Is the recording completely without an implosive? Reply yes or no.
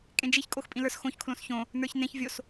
yes